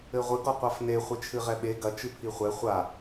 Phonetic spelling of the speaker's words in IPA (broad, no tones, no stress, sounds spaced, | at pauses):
ɘ ʁʷ ɨ ɡ ɔ qʷ a f n e χʷ e t͡ʃʰ ɨ ʁ ɛ ɓ e ɡ ɐ t͡ʃ ɨ pʰ i χʷ ɛ χʷ a